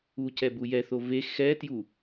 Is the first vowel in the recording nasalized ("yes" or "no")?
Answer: no